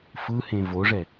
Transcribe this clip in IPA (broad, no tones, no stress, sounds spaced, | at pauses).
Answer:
f ɯ h ẽ v o ʐ ɛ